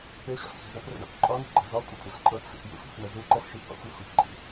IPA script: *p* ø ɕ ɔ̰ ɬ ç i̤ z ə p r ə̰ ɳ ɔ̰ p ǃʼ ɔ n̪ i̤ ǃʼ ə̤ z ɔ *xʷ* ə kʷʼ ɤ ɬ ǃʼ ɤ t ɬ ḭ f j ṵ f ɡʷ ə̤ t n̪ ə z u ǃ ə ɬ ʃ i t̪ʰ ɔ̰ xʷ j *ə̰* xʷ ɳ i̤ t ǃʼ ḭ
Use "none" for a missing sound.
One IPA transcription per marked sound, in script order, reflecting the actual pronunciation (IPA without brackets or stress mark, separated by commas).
p, kʷʼ, ɔ̰